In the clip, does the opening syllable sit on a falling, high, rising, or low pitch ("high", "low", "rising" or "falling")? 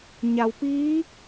low